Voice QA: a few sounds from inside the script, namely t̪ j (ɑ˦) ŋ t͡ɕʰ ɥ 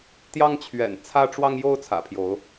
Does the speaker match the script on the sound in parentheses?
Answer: yes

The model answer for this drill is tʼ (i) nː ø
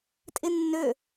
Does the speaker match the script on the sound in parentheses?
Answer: no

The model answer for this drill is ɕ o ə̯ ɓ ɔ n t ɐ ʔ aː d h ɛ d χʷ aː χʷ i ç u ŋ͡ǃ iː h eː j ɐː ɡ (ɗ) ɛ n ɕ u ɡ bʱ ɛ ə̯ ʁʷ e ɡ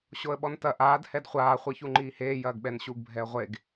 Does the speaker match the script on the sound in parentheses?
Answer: no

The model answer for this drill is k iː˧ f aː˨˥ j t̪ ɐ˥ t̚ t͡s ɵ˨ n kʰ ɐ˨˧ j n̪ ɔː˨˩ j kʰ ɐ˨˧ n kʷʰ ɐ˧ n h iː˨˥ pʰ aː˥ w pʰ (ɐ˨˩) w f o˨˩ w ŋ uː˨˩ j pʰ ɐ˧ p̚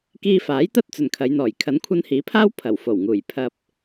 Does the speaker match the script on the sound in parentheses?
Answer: yes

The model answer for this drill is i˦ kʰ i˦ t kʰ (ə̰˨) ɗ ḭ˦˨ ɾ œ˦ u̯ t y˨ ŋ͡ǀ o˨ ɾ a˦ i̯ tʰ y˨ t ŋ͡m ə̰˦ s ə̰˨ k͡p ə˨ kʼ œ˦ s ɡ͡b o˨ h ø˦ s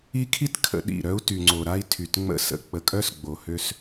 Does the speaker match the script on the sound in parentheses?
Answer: yes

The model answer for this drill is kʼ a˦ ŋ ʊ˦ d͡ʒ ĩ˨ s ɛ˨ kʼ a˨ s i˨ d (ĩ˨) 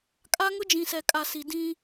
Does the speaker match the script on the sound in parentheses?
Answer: no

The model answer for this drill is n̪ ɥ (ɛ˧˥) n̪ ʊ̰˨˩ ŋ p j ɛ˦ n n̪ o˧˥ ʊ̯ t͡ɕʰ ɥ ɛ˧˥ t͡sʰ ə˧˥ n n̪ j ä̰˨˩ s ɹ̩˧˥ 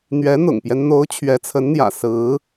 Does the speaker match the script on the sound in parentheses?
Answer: yes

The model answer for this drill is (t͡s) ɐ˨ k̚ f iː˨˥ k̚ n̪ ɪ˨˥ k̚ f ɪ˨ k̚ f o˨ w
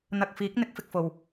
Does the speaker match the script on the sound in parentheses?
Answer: no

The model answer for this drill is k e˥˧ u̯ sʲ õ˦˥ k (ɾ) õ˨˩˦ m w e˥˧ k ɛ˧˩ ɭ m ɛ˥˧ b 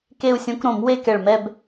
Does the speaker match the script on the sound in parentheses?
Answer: yes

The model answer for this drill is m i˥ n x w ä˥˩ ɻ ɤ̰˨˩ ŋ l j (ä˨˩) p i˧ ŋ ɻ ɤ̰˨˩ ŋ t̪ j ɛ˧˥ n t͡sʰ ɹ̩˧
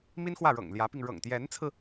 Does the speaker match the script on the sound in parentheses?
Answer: no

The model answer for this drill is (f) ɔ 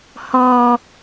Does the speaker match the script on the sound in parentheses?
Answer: no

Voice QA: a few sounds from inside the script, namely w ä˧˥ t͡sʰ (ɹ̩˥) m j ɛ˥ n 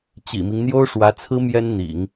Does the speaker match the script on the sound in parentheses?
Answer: yes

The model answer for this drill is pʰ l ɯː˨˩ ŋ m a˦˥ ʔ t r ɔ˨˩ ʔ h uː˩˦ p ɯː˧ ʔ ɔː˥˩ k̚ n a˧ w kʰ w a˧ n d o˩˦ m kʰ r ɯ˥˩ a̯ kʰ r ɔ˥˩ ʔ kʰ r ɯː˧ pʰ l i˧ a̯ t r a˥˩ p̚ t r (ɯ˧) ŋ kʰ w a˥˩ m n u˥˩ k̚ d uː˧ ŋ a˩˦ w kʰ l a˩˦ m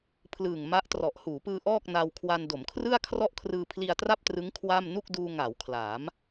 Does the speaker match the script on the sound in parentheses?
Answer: no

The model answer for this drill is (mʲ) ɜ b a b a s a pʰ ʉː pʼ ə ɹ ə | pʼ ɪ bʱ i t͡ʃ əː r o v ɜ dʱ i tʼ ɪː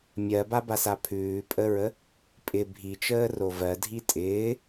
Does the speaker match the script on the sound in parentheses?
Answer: yes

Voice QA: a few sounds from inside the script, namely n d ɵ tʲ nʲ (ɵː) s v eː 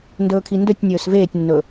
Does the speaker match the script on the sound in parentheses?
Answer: yes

